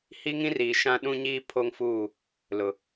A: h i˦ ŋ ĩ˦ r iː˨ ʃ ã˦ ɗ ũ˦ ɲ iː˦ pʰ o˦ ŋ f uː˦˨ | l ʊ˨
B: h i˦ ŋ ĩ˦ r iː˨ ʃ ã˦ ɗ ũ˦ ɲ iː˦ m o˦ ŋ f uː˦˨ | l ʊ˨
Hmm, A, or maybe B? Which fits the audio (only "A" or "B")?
A